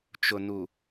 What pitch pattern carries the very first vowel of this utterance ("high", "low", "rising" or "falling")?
low